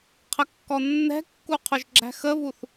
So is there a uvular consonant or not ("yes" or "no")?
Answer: yes